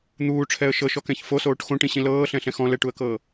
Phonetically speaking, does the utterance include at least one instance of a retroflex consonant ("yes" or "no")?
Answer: yes